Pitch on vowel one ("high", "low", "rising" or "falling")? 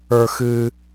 high